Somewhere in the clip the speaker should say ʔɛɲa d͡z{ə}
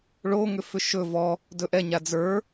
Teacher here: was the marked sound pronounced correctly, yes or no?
no